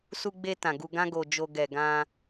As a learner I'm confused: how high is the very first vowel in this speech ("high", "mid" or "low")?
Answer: high